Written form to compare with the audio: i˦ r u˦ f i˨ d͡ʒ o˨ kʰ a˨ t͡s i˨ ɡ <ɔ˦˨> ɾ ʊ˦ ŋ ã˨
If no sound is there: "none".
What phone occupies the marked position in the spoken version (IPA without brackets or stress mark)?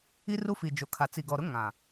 ɔ˨